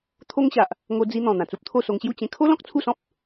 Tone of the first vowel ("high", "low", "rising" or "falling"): high